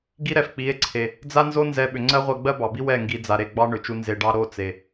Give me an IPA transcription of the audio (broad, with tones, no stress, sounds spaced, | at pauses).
ɡ i˦ ɾ ɛ˨ f k͡p i˨˦ e̯ ǀʰ e˨ | d͡z a˦ n z o˦ n z ɛ˧ ɓ ʏ˨ ŋ͡ǀ ɜ˦ ʁʷ ɜ˧ ɡ͡b ɜ˦ b ɑ˨ b i˦ w ɛ˦˨ ŋ ɡ i˨ d͡z a˨ ɾ e˦˨ ɡ͡b ɑ˦ ɳ ʏ˨ t͡ʃ u˧ n z e˨ ɖ ɑ˧ ɾ o˦˨ t͡s e˨